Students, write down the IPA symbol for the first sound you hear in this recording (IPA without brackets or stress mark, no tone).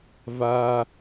v